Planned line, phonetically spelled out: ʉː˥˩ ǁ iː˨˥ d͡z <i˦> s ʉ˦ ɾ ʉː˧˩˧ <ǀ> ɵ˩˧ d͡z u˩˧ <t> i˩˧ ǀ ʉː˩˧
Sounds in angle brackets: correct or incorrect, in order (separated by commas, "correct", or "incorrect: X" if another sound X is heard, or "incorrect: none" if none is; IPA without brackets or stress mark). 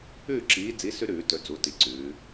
incorrect: i˨˥, incorrect: t, correct